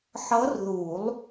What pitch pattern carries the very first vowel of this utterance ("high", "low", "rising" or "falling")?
rising